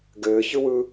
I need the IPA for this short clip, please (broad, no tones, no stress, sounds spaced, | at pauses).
ɡ ɘː ç ɯ w ɯ